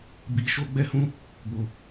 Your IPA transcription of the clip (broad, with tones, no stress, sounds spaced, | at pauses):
b i˧ ʃ o˦ ɡ͡b ɛ˦ h ũ˦ | b o˦